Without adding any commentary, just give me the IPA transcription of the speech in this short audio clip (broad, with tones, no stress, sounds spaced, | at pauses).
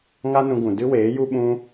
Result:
ŋ a˦ n ũ˧ ɡ ũ˨ d ɨ˦ w eː˨˦ j u˦ ɓ ũ˦